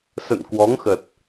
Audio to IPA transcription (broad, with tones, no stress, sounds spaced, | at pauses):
s ə̰˧˨ n k w ɔ˨˦ ŋ x ə˨˩ t̚